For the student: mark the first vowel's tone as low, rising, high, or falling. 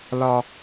high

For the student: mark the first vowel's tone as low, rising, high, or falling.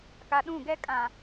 low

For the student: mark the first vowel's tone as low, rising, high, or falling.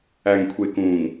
low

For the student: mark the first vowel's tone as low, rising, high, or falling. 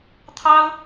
high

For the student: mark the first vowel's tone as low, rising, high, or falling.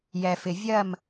low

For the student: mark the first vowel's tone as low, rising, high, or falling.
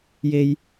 low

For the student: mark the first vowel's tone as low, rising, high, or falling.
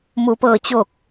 low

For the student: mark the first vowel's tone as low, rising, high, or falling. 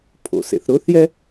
low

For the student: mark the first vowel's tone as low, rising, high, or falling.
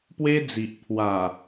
high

